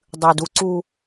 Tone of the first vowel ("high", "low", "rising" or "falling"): low